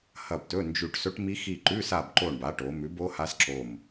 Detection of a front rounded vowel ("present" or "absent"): absent